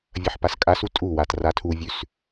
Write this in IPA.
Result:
vʲ ɐ ħ p a s kʼ a s u tʼ u w a t r a tʰ u vʲ ʉ s

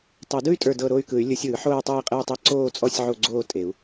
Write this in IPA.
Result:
tˤ o˨˩˦ d ɯ˥˧ y̯ tʼ ə˞˥˧ d ɤ˥˧ ɾ o˥˧ y̯ k ɯ˨˩˦ y̯ lʲ ɯ˨˩˦ sʲ ɯː˨˩˦ ħ oː˥˧ y̯ tˤ eː˥˧ qʼ e˥˧ u̯ tˤ e˥˧ ǀ oː˥˧ t͡sʼ ɔ˥˧ sʲ ʕ o˥˧ ɡ͡ǀ oː˥˧ tʼ e˨˩˦ u̯

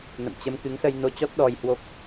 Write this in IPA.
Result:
n ə̰˧˨ m t͡ɕ ə˧ m k ɨ˨˦ ŋ s ə˧ j n o˧ t͡ɕ ɔ˦˥ t̚ ɗ ɔ˧ j h w o˦˥ k̚

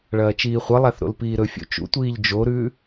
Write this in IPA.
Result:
ɭ ɐː t͡ʃ iː χʷ ɐ lˠ a θ ɾ o̰ l p iː ɾ ɵ fʲ o̰ t͡ʃ ṵ tʷ iː ʎ d͡ʒ o ɾ ʉː

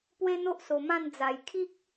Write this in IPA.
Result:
p w e˦ n̪ o˦ ʔ s o˨˩ m ã˥˧ n d͡z a˨˩ j kʰ i˦ k̚

